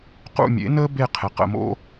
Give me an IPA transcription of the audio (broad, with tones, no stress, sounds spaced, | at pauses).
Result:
q ṵ˦˨ mʲ ḛ˩˥ n əː˦˥ b e˦˨ qʰ ɪ˩˥ q ə̰˦˨ m o̰˦˥